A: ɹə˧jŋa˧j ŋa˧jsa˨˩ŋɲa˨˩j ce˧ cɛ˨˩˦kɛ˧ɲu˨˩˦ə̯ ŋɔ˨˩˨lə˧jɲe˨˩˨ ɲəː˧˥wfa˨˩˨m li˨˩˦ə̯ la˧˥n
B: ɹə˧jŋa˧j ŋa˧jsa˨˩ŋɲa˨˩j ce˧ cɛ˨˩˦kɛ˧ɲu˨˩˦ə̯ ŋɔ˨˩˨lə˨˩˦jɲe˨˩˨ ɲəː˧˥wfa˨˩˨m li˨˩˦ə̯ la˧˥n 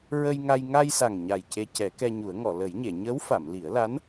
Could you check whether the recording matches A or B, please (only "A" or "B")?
B